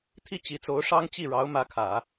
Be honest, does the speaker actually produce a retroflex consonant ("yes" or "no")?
yes